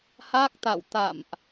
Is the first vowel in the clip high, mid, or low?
low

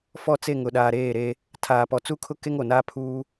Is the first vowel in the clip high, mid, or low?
mid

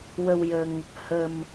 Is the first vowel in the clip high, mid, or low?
mid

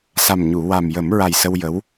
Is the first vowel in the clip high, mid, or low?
low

